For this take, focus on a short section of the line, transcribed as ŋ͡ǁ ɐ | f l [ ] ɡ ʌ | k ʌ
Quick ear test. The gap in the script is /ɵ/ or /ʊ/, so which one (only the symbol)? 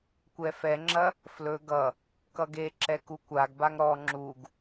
ɵ